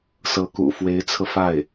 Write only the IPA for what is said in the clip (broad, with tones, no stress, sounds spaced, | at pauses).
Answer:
s ɤ˧˥ k ṵ˨˩ f w e˧˥ ɪ̯ t͡sʰ ɤ˧ f a˥˩ ɪ̯